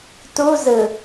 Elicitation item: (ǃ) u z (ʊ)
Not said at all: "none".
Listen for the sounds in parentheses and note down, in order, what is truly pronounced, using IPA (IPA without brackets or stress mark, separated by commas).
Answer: t, ɯ